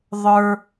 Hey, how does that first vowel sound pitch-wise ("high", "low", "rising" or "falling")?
high